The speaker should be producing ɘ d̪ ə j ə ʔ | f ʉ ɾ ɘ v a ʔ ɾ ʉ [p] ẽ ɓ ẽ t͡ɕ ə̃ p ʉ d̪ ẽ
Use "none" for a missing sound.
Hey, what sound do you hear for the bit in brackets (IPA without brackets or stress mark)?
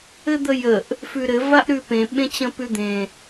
p